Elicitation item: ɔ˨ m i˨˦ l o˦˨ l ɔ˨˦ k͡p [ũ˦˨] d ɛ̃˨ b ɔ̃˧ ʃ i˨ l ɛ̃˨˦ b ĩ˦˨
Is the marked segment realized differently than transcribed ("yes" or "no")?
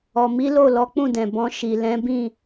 no